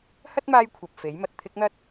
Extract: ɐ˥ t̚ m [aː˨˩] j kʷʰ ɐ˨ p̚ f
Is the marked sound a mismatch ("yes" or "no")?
yes